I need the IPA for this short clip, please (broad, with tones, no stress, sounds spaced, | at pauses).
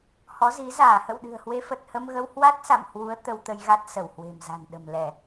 h ɔ˨˦ z i˨˦ z aː˧˩ h ə̰˧˨ w ɗ ɨ̤˨˩ ə̯ h w e˨˦ f ə˨˩ t̚ h ə˧ m ɣ ə˧ w h w a˦˥ t̚ s a̰˧˨ m h w u˨˦ ə̯ t̪ ə˧ w t̪ ə˧ j ɣ a˦˥ t̚ s ə˧˩ w h w e̤˨˩ m z a̤˨˩ n ɗ ə̤˨˩ m l ɛ˧˩˨